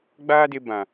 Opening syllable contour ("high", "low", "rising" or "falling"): high